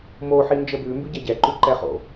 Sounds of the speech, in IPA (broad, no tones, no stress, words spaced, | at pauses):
mo ħind͡ʒəbʉ mbʉɟæɟɛ ǃʉǃɛχo̰